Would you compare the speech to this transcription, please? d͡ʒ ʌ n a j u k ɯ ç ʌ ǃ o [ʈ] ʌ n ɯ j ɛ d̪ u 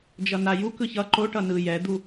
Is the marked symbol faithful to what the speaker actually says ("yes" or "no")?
yes